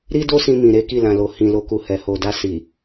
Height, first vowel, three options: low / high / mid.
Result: high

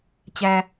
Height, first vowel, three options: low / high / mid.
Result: low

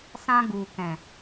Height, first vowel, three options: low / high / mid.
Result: low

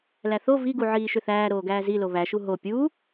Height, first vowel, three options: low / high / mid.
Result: low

